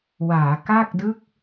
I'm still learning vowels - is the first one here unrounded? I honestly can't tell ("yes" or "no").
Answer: yes